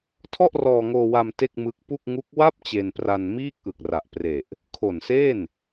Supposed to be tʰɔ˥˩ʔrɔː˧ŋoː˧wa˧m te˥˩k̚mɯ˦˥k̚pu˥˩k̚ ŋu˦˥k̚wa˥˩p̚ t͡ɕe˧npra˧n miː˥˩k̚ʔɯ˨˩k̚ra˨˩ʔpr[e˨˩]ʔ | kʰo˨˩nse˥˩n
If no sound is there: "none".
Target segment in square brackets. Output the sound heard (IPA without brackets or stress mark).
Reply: e˨˩